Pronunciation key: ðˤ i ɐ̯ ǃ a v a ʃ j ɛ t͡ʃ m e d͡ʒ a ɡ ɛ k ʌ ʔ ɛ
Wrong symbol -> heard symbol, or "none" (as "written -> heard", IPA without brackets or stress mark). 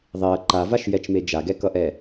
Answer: none